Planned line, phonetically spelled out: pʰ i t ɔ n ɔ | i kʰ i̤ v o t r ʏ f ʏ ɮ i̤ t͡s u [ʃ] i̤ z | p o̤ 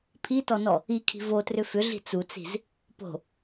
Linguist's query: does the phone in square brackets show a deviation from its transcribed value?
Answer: yes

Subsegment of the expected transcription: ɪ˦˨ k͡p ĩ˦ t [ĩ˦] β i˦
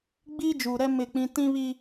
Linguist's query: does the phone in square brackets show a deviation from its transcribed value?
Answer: no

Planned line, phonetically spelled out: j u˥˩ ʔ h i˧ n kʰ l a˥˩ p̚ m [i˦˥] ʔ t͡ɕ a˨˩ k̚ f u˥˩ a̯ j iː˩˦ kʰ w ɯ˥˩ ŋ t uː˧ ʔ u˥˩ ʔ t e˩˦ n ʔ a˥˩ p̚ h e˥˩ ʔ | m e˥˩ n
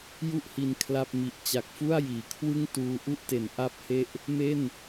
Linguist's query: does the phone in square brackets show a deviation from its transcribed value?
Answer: yes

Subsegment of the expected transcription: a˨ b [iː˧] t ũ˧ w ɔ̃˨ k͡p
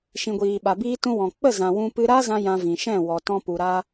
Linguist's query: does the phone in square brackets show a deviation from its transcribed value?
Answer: no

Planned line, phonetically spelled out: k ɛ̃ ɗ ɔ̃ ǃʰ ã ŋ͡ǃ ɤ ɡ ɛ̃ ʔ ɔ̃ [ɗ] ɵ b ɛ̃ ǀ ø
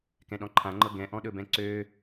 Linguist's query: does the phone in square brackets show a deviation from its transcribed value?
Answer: no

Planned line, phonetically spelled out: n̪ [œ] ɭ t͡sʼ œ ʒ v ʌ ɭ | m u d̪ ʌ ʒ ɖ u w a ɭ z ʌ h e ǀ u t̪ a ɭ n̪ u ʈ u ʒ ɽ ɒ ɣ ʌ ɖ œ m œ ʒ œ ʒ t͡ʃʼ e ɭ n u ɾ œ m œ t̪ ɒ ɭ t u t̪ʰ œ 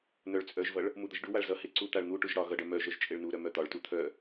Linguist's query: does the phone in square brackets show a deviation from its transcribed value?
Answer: no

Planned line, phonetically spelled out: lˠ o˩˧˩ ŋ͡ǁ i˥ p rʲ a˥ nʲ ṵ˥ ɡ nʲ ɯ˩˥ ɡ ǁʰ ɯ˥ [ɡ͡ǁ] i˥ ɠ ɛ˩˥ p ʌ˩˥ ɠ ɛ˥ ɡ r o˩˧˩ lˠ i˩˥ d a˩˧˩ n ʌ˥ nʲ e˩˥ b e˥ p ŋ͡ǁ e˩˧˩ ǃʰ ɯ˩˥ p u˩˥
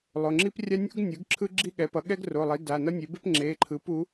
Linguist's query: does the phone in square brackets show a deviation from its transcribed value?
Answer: no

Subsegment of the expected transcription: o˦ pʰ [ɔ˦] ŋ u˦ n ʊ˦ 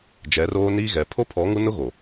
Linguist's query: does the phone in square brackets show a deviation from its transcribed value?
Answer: yes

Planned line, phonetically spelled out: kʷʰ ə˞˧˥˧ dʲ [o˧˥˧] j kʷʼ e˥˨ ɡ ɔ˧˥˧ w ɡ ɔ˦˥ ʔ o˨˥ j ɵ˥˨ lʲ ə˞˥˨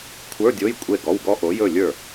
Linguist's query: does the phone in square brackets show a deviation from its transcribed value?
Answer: no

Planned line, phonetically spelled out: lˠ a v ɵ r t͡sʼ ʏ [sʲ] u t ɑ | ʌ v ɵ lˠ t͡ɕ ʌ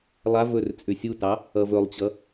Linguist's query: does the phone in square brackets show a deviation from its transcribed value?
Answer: no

